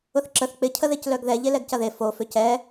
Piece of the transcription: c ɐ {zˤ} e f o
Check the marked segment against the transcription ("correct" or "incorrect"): incorrect